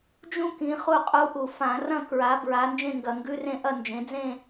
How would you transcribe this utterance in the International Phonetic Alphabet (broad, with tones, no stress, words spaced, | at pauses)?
d͡ʒũ˥ kĩ˨˦χu˥˧qʼu˧˥˧ʔu˧˩˧ fã˧˩˧rɐ̃˥˧kɹa˨˦ bɹa˨˦ nd͡ʒẽ˥˧ŋɡɐ˧˩˧ŋɡʉ˧˥˧rẽ˥˧ ʔɐ˥˧nd͡ʒẽ˨˦ d͡zẽ˥˧